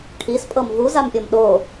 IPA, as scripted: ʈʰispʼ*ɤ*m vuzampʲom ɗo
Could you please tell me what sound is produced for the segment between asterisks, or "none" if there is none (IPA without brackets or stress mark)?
ɤ